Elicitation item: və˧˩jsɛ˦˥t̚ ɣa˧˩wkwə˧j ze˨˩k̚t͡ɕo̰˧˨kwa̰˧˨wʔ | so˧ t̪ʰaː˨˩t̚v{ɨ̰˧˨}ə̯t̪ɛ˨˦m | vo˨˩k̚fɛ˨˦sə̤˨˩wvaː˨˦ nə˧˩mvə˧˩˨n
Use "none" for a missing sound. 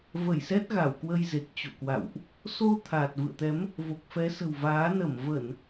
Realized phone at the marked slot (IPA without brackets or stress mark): ɨ̰˧˨